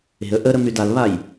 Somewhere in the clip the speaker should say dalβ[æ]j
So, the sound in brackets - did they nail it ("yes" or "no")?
no